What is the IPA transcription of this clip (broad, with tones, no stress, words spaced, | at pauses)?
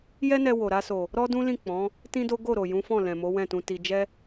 jɛ˦nɛ˧ wo˨ɾa˧so˨ | ɾɔ˦ dũ˦lĩ˦˨ k͡pɔ̃˨˦ | tĩ˦do˦ ɡo˦˨ ɾo˨ jũ˨˦fɔ̃˦˨ lɛ̃˨mo˨˦ wɛ̃˦˨tũ˧ti˧ d͡ʒɛ˦